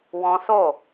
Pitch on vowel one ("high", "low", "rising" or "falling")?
high